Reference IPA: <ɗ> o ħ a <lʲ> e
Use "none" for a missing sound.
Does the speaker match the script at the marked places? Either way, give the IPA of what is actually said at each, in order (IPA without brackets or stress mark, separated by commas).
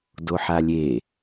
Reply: d, lʲ